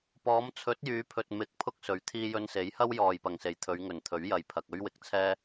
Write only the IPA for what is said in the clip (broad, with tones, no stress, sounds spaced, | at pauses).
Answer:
p ɔː˨˧ m t͡sʰ ɵ˨˥ t̚ j yː˨˧ pʰ ɵ˨ t̚ m ɪ˧ k̚ pʰ ʊ˥ k̚ s ɵ˨˥ ɥ t̪ʰ iː˧ j ɵ˧ n s e˨˥ j h ɐ˥ w j ɔː˨ j p ɐ˨˩ ŋ s e˨˩ j t̪ʰ ɵ˨˧ ɥ ŋ ɵ˨˩ n t̪ʰ ɵ˨˥ ɥ j ɐ˨ j pʰ ɐ˨ k̚ ɵ˥ ɥ w ɪ˨ k̚ t͡sʰ ɛː˥